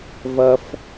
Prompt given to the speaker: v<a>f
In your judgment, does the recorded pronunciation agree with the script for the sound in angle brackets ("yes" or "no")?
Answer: no